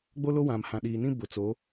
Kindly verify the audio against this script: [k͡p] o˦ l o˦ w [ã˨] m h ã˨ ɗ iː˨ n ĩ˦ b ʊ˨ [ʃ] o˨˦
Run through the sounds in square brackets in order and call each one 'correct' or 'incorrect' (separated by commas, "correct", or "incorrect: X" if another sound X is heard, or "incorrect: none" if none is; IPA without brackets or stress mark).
incorrect: ɡ͡b, correct, incorrect: t͡s